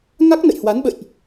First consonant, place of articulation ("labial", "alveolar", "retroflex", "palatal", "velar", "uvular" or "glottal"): velar